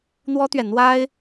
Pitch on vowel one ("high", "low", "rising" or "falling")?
high